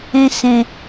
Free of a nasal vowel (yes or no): no